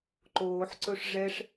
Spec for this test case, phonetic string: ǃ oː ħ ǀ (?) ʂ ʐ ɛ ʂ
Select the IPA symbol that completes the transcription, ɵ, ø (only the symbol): ɵ